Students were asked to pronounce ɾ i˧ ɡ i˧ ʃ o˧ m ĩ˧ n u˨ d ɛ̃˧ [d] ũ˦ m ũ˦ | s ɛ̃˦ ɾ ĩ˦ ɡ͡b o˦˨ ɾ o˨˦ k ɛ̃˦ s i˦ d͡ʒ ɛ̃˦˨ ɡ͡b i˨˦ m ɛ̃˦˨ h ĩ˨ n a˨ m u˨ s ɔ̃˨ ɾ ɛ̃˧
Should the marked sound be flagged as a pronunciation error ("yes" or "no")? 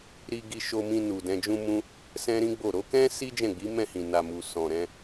yes